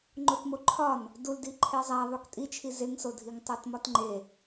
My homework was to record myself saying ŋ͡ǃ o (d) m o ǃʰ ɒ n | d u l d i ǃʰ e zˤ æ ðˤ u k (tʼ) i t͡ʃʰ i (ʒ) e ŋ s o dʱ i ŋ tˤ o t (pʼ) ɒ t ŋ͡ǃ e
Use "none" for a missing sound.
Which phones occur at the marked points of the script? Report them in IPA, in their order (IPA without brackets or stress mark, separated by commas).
t, tʼ, z, m